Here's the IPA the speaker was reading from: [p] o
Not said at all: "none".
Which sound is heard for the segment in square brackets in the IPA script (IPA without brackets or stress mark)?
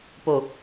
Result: p